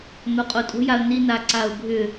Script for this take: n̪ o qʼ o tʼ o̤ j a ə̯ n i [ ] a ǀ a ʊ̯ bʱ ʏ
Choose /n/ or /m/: n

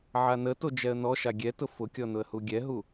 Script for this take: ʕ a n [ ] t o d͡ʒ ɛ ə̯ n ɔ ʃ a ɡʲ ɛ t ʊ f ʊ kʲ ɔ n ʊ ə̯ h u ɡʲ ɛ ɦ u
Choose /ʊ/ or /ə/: ə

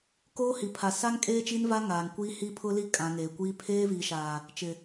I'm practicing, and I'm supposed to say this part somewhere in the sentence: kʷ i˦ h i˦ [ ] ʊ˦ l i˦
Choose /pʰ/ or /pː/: pʰ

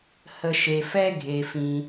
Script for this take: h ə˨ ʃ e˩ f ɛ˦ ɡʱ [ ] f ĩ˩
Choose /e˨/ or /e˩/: e˩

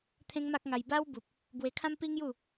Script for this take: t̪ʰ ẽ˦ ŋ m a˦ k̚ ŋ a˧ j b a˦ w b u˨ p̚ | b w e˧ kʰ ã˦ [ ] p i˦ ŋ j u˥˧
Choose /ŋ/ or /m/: m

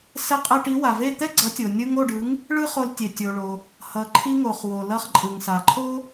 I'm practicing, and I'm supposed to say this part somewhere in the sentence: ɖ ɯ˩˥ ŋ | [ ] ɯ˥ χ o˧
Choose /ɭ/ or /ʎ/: ɭ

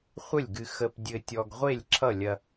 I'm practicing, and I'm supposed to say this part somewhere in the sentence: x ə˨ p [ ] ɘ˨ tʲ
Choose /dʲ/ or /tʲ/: dʲ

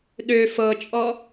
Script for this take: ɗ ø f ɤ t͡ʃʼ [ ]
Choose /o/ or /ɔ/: ɔ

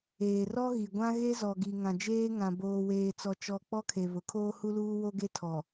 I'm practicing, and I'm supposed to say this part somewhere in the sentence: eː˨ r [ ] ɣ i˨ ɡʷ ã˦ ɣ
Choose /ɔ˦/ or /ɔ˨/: ɔ˦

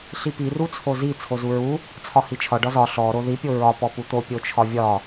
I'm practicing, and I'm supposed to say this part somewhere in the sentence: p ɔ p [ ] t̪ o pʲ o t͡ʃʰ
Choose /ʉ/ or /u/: u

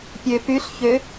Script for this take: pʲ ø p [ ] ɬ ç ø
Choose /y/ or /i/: y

